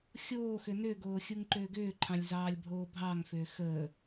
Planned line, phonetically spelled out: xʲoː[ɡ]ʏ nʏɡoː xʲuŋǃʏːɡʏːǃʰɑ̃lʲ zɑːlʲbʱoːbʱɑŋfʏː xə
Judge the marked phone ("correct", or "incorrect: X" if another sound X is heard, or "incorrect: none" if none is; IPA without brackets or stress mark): incorrect: x